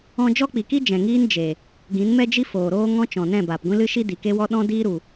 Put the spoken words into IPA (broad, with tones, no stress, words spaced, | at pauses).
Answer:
ɔ̃˧d͡ʒɔ˦k͡pi˨ki˦ d͡ʒɛ̃˨ŋiː˦n d͡ʒe˨ | ɡĩ˨˦nmɛ˦d͡ʒi˦ foː˨ɾoː˦ ŋɔ̃˦t͡ʃɔ̃˨nɛ̃˦˨ baː˨pɡʷĩ˦lɨ˦ʃi˦ di˨ke˦wɔ˦ ɗɔ̃˦diː˦ ɾu˨